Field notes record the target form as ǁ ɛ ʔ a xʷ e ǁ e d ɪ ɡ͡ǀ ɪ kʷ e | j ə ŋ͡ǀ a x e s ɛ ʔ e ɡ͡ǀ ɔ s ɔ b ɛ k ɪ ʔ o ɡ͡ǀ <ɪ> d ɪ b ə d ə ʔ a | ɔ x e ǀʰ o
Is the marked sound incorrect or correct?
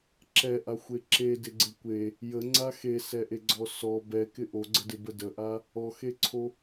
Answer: incorrect